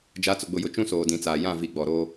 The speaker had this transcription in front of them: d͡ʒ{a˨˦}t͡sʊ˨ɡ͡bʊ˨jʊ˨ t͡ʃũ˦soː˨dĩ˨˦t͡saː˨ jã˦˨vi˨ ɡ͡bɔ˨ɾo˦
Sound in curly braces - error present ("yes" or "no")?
no